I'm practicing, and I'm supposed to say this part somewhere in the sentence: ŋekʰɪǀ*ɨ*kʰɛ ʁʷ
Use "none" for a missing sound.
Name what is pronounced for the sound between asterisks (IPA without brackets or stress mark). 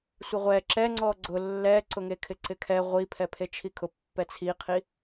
ɪ